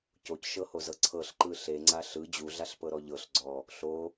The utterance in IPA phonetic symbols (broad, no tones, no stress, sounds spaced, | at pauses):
c o c ʃ ɤ h o z ɤ ǀʰ ɤ ɬ ǃ ɯ ɬ e ŋ͡ǀ a ɬ ɯ d͡ʑ u ɮ a ɬ p ɤ ɾ ɔ ʎ ɤ ɬ ɡ͡ǀ ɔ | ɬ o